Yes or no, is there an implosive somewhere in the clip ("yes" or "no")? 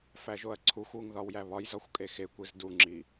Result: no